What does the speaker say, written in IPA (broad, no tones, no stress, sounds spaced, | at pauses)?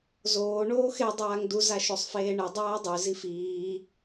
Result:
z oː ɳ oː x e dˤ aː ŋ d u z a ʃ o sˤ f eː ɳ ɨ dˤ aː dˤ ʉ z i f iː